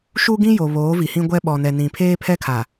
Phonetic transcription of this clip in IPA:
ʃu˦ɡĩ˦jo˨ βoː˨˦vi˨hĩ˦ɡʷɛ˦ ɓɔ˨nɛ˨nĩ˨ pʰeː˦pʰɛ˦ kʰa˨

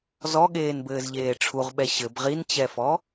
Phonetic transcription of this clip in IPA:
zɔɠeːnbɘːzʎeː ʈ͡ʂʰuʁɓɛ ɕɘb ʁint͡ɕɛfɔ

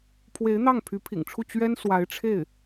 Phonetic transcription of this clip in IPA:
pʰwe˧˥ɪ̯n̪ɑ˥˩ŋ pʰy˧˥pʰḭ˨˩ŋʈ͡ʂʰu˥˩ t͡ɕɥɛ˥nswa˧˥ɪ̯ ʈ͡ʂʰe˥˩ɪ̯

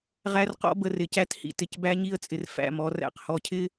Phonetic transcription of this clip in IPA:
ʁæ˦rqɔ̰˦bə˨rɪ˨ cæ˦thḭ˨tɪ˨cbæ˦ ɲi˦ə̯t͡sʼɪ˨r fæ̰˦˨mɔ˨˦ ræ̰˨qhɔ˨cʰɪ˦

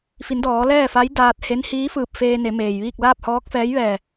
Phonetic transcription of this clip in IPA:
fi˩˧ndɔː˩˧ lɛː˥˨fa˧˥jdaː˧t̚he˧˥n hiː˧˥fɯː˧˩p̚ feː˧ne˩˧ meː˩jʋiː˥˨k̚ laː˥˨p̚hɔː˧˥k̚fɛː˧˥j ʋɛː˧˩

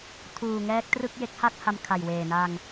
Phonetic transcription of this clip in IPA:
tʰuː˨˩ŋɛː˦˥k̚trɯ˥˩k̚ je˦˥k̚ha˥˩t̚ha˧m kʰa˨˩jweː˨˩na˧ŋ

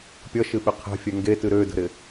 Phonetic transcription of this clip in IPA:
pʲʌʃɨɓɪ qʰɛ̤fʲɛ ŋɡetɨ ɾødə̤ɾɪ

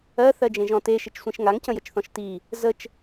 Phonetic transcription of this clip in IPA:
ɜ θɜd͡ʒẽʒɔ̃te ʃɪt͡ʃsʷẽʃŋaŋ cə̃jət͡ʃθɔ̃ʃti | zət͡ʃ

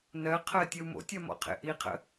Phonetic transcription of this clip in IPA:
nɜqʰɜ tʲəu̯mo̰tʲɜ mɔ̰qʰḛʔiqʰə̰

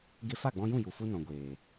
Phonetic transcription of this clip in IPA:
ɡe˧fa˦˨ɡ͡bɔ̃˧jũ˦˨ ju˨fu˦nɔ̃˨ɡʷeː˨

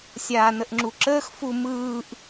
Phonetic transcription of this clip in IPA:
sʲaːnəʔŋ͡ǁuǁəːx fumɯːʔ

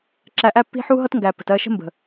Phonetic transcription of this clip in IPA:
ǁæ˧ʔæ˦pːi̤˦ ħu˦ɦʌ˦tŋɡæ˨pːə̤˨t ɜ˦˨ʃə̤˦mbə̤˨

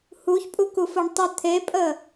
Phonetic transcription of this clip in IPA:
huçpʼukufoɳ tˤə t̪ʰepʼə

